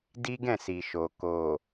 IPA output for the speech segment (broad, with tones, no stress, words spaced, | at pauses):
di˦ɡɛ̃˦˨ si˨ʃo˨ ko˨